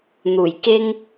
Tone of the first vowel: low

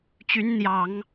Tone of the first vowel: rising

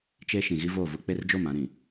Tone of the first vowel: high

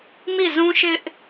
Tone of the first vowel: falling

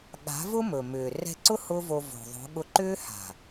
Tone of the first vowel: rising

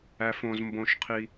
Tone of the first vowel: low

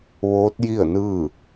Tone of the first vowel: rising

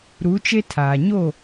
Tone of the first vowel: rising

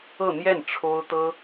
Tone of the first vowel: falling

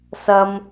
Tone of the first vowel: high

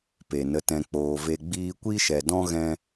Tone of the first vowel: low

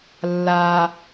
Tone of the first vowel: low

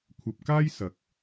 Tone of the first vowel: low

